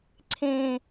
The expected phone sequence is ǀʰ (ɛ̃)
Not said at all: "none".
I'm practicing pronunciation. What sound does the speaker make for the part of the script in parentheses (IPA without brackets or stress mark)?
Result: ẽ